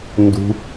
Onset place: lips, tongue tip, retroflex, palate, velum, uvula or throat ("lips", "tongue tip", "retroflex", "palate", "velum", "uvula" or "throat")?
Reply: tongue tip